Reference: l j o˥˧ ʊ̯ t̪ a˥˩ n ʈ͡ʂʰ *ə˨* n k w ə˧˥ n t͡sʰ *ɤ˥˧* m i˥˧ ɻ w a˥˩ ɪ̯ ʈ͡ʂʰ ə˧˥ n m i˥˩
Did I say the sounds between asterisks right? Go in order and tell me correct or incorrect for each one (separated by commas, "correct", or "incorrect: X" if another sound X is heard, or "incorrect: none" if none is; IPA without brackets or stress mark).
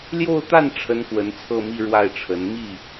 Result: incorrect: ə˥, correct